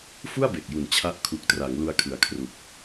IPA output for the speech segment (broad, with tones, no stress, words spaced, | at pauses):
fu˥˩a̯be˨˩k̚ju˨˩n t͡ɕʰa˦˥ʔ kʰu˨˩k̚tra˩˦ŋ lu˧a̯kʰɯ˨˩a̯ kʰru˨˩k̚